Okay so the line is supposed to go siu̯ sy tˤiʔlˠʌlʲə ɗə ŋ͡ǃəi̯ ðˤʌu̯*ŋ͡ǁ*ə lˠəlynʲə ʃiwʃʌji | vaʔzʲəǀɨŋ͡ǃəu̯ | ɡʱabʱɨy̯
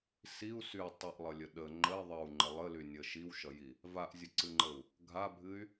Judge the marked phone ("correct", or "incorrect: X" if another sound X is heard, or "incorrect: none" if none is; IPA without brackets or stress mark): incorrect: ŋ͡ǃ